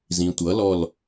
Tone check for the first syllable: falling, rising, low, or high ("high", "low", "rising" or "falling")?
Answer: low